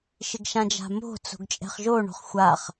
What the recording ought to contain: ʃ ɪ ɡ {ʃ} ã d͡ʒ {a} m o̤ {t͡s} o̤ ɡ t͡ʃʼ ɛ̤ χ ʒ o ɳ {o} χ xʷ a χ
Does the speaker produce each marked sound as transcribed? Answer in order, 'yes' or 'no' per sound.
yes, no, yes, no

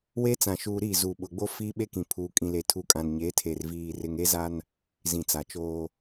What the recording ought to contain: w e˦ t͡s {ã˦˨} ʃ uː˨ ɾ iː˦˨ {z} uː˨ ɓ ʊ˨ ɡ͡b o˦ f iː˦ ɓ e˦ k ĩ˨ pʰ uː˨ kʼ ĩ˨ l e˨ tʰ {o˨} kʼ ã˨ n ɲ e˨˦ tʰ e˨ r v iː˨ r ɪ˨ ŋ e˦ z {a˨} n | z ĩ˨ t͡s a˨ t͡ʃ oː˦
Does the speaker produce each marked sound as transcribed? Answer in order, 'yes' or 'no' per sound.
no, yes, no, no

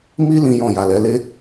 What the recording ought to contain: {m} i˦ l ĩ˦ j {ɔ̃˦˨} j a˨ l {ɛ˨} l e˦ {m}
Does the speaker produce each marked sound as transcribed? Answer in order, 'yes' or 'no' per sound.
yes, yes, no, no

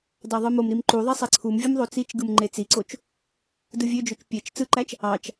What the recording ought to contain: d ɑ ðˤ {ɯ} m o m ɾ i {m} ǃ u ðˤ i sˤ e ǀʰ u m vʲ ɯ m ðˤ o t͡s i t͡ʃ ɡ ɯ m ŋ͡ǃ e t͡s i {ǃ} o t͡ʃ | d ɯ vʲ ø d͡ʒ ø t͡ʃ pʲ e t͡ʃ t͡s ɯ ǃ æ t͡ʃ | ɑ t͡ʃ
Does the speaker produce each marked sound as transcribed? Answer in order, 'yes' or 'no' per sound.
yes, yes, no

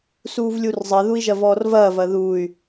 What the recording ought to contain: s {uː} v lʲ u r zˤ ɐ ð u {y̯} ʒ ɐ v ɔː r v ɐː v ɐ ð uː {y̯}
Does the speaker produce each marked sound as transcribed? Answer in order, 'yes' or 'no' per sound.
yes, no, yes

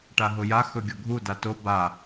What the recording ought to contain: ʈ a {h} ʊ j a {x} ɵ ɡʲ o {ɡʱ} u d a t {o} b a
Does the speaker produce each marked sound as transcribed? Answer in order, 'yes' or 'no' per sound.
no, yes, yes, yes

